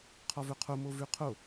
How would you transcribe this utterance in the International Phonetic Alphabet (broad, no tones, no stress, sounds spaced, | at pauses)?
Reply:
qʰ ɔ v ɵ qʰ o m o v ʉ qʰ o